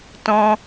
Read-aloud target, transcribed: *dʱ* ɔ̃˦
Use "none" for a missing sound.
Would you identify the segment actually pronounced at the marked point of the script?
t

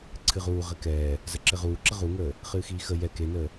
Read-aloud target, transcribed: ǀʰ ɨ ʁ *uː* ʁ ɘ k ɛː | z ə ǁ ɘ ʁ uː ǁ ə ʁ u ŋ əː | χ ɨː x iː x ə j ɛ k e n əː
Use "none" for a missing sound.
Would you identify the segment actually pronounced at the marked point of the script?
uː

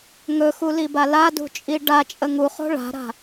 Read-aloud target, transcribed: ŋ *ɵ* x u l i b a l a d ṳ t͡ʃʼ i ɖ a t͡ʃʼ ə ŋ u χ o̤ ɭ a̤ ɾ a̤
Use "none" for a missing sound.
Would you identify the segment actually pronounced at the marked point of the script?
ɵ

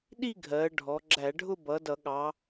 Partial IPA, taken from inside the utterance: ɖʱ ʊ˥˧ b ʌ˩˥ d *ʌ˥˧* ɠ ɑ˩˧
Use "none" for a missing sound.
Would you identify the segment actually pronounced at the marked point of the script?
ʌ˧˩˧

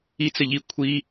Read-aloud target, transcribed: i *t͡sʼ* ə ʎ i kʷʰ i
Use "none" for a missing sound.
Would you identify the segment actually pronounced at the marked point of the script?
t͡s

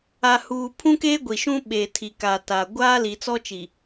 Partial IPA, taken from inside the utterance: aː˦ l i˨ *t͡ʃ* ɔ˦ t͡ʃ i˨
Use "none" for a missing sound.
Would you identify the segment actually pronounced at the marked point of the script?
t͡s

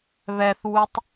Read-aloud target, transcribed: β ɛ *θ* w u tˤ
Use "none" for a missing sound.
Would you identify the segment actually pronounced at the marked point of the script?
θ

